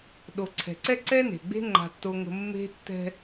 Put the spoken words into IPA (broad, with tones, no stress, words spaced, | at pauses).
ɗo˨ǀʰɛ̤˨ǀɛ˦ ǀɛ˦ne̤˨ɡ͡be̤˦ ŋ͡ǃa̤˦tːo˦ŋə̤˦ mːe̤˦ tːɛ̤˦